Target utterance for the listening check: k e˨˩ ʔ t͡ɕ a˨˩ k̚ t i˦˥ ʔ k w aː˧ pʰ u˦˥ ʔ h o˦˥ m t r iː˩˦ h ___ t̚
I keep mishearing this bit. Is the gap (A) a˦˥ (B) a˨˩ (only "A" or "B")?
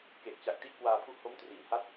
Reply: A